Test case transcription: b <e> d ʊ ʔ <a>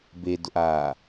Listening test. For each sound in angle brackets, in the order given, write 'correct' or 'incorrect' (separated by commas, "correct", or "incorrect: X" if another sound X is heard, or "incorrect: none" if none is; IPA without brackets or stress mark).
correct, incorrect: aː